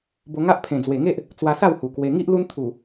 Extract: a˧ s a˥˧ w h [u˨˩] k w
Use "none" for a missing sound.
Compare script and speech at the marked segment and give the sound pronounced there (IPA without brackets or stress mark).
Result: u˨˩